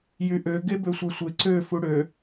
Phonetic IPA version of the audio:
jyʔø ɡebøsʷæsʷe ǀø fuɽø

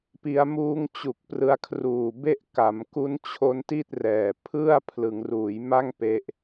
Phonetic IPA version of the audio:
pi˦˥a̯muː˥˩ŋ t͡ɕu˨˩k̚ prɯ˧a̯kʰruː˨˩ be˥˩ʔka˩˦mku˦˥n t͡ɕʰo˦˥nti˥˩t̚rɛː˨˩ pʰɯ˥˩a̯ pʰlɯ˩˦ŋruː˩˦jma˥˩ŋ pe˦˥ʔ

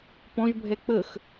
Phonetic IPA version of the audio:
pɔ̃ʒbʱɛ k͡pəx

